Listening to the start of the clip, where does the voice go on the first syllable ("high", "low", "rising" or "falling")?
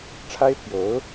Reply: high